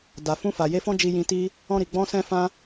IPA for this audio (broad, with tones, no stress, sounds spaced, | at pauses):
d a˨ f ũ˧ f a˨ j e˧ f ɔ̃˦ d͡ʒ i˧ j ĩ˧ t i˦ | ɔ̃˧ ɾ i˨ ɡ͡b ɔ̃˧ s ɛ̃˦ f ã˦